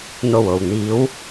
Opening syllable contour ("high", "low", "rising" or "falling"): low